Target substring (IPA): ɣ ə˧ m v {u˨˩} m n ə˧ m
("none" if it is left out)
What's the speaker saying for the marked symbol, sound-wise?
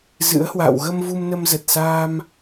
u˧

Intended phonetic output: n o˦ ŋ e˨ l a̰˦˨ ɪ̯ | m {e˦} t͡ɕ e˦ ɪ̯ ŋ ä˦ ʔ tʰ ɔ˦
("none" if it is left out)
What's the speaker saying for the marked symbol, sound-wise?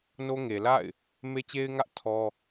e˦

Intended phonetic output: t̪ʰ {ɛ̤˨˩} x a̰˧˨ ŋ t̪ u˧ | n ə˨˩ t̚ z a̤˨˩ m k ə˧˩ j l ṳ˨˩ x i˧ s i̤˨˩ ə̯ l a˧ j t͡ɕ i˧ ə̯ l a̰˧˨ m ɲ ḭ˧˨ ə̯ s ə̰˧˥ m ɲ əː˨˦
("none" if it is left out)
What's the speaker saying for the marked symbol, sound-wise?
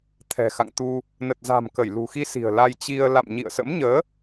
ɛ̤˨˩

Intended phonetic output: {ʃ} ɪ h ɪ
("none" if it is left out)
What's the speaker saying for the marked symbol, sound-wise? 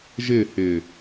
ʒ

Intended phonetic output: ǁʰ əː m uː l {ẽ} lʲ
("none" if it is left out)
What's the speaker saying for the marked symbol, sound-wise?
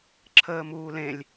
ẽ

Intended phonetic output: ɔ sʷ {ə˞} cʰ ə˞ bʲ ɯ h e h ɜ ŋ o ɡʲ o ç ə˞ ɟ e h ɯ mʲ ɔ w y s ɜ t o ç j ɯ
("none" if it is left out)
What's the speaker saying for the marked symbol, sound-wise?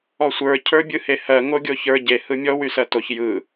ə˞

